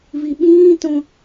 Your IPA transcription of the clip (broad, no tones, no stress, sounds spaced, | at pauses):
v i ɓ ĩː t õ